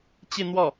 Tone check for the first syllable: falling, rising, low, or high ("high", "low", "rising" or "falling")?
falling